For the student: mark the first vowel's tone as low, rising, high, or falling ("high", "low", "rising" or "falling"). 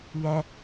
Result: high